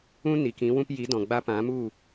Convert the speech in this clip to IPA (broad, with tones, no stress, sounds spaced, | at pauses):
ũ˦ n i˨ k ĩ˨˦ w ũ˧ p j i˨˦ d ɔ̃˨ ɡ͡b a˧ p ã˨˦ m u˦˨